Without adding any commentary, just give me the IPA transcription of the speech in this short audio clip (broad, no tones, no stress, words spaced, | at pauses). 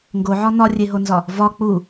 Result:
ŋɡoʕɒ nɒrʲeɦonzɒ | vɒ k͡pu